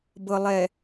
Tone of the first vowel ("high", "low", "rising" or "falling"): low